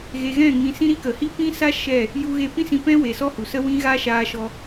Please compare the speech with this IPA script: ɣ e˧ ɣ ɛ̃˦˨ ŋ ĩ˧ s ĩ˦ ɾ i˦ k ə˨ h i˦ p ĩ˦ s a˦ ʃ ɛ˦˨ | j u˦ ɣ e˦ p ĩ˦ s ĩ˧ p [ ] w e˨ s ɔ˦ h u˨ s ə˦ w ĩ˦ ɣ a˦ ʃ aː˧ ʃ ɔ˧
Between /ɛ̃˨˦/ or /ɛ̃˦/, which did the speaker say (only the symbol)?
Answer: ɛ̃˦